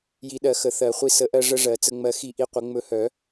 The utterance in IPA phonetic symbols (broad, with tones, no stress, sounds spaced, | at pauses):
j i˨˩˦ ɗ ɜ˨˩˦ x ə˨˩˦ θ ɜ˨˩˦ χʷ i˧ s ə˨˩˦ ʔ ɜ˧ ʐ ə˧ ʐ ɜ˨˩˦ t͡s ə˧ ŋ͡m ɜ˧ x i˧ ʔ i˧ qʷ ə˨˩˦ ŋ͡m ɵ˧ h œ˨˩˦